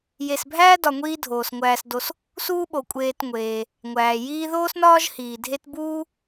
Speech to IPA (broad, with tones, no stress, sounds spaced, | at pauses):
j e˨ s bʱ æː˥ d ɒ˨ ŋʷ iː˦ dʱ oː˩ s ŋʷ æː˨ s d o˨ s | s uː˥ ɓ o˩ kʷʼ eː˨ t ŋʷ eː˩ | ŋʷ æː˩ j iː˦ ð oː˥ s n ɒː˥ ʒ h iː˩ dʱ e˦ t b uː˥